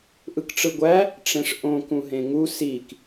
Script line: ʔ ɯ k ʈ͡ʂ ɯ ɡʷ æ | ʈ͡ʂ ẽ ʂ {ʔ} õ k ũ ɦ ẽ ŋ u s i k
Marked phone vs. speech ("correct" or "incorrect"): correct